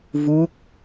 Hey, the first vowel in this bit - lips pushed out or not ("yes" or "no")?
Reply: yes